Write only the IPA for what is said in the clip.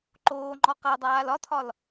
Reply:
ǃ oː ŋ͡ǃ ɔ q a dˤ aː l ɒ tʰ ɒ l

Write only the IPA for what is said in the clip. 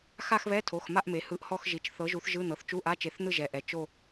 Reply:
x a˥˧ x β ɛ˧˥˧ tʰ o˩˧˩ x m a˥˧ ʔ m e˩˧ h ɯ˨˥ ʔ h ɔ˥˧ x ʒ i˩˧˩ t͡ʃ θ ɤ˨˥ ʒ u˨˥ θ ʒ ɯ˧˥˧ n̪ ɤ˩˧˩ θ t͡ʃ u˧˥˧ ʔ a˧˥˧ t͡ʃ e˨˥ θ n̪ ɯ˥˧ ʒ ɛ˩˧ ʔ ɛ˩˧ t͡ʃ o˥˧

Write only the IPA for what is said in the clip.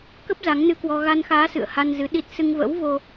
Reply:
k ə˦˥ p̚ z a˨˦ ŋ n ɨ˧ k w ɔ˧ ɣ a˧ n x aː˨˦ s ɨ̰˧˨ ə̯ h a˧ n z ɨ˨˦ ɗ i˦˥ t̚ s ɨ˧ ŋ v ə̰˧˥ w v o˧

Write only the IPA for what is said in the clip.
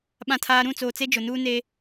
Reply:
ɓ ã˨ tʰ aː˨ ɾ ũ˦˨ t͡s oː˨ t͡s e˦ d͡ʒ ʊ˨ n uː˦ n e˦

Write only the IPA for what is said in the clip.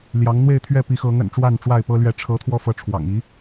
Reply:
l j ɑ˨˦ ŋ n̪ w e˥˨ ɪ̯ t̪ʰ ɥ ɛ˥˨ p i˨˦ x ɤ˨˦ ŋ ə̰˨˩ n ʈ͡ʂ w a˥˨ n ʈ͡ʂ w a˥˨ ɪ̯ p ɤ˦ l ɥ ɛ˨˦ ʈ͡ʂʰ ɤ˨˦ t̪ʰ w ɔ˧ f ɤ˨˦ ʈ͡ʂʰ w ɑ̰˨˩ ŋ i˨˦

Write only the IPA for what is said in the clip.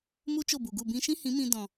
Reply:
m u˦ t͡ʃ o˦˨ b u˨ ɡ u˦˨ b ĩ˧ ʃ ĩ˦ h ĩ˨˦ m ĩ˧ d ɔ̃˨

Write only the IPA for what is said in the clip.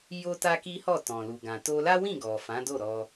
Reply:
j o˦ t a˦ k i˦ h ɔ˦˨ t ɔ̃˨ l u˨ ɡ ã˨ t o˧ l a˦ w ĩ˦˨ ɡ ɔ˨ f ã˨˦ d o˦˨ ɾ ɔ˧

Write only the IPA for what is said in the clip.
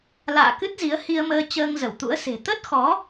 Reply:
l a̰ː˧˨ k ɨ˦˥ t̚ z i˨˦ ə̯ h i˧ ə̯ m əː˧ t͡ɕ əː˧ ŋ z ə˧˩ w t̪ ṵ˧˥ ə̯ s e̤˨˩ t̪ ə˦˥ t̚ x ɔ˨˦

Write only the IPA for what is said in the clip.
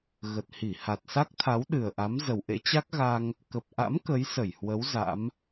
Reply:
ɣ ə˨˩ t̚ h i˧˩ h a˨˩ t̚ s a˦˥ k̚ t̪ʰ a˨˦ w ɗ ɨ˨˩ ə̯ ʔ a˨˦ m z ə˨˩ w ʔ ḛ˧˥ t͡ɕ a˦˥ k̚ ɣ a˧ ŋ | k ə˨˩ p̚ ʔ a̰˧˥ m k ə˨˦ j s ə˧˩ j h w ə˨˦ w z a̰˧˥ m

